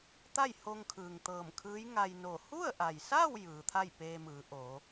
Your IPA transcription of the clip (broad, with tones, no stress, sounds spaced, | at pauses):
t̪ a˥˨ j h o˧ ŋ kʰ ɯː˩ ŋ t̪ ɤː˧˩ m kʰ ɯː˧˥ j ŋ a˧ j n o˧˩ h u˥˨ ə̯ ʔ a˩ j s a˥˨ w j ɯː˩˧ t̪ʰ a˥˨ j p eː˧ m ɯː˩˧ ʔ o˩˧